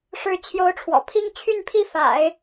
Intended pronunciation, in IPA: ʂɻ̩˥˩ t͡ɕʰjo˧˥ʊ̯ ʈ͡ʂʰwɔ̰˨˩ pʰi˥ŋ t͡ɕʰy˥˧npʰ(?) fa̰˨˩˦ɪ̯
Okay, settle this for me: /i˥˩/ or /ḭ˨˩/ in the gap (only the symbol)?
i˥˩